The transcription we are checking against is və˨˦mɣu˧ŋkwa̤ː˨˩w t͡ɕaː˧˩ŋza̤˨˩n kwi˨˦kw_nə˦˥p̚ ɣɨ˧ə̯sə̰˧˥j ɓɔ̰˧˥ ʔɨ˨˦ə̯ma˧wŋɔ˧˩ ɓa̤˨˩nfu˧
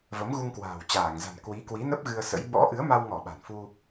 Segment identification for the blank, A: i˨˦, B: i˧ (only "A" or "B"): A